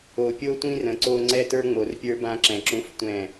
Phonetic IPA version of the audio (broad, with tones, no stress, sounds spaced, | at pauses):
o˨ pʲ o˦ tʷ ĩ˦ r ə̃˨ ǀ o˦ ŋ͡ǀ ɛ˦ t ə˞˦ ŋ͡m o˨ r pʲ ə˞˦ b ã˦ ǁ ɛ̃˨ ǁ ũ˦ f tʷ ɛ̃˦˨